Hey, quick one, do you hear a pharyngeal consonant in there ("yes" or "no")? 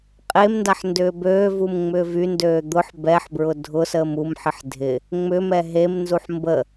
yes